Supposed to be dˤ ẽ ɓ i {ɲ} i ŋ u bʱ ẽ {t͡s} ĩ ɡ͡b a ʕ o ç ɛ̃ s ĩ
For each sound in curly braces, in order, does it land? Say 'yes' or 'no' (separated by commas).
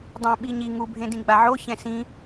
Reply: yes, no